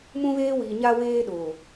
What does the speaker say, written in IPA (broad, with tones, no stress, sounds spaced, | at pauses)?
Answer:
m ũ˦ β eː˦ w iː˨ ɲ a˦ w eː˦ ɗ oː˨